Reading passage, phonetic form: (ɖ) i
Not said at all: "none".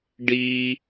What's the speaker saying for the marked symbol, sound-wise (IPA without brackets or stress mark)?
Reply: ɖ